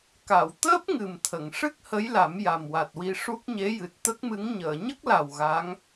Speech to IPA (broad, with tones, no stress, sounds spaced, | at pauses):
k a˨˩˨ w t̪ əː˦˥ p̚ ŋ ɨ˨˩ m t̪ʰ ə˨˩˨ ŋ ʂ ɨ˦˥ k̚ h ə˧˥ j l a˨˩˦ m j a˨˩ m w a˨˩ t̚ w i˧ ʂ u˦˥ k̚ ɲ e˧˥ j ɨ˨˩ t̚ t̪ ə˦˥ k̚ m ɨ˧˥ ŋ ɲ əː˨˩˨ ɲ ə˦˥ k̚ l a˨˩ w ɣ a˧˥ ŋ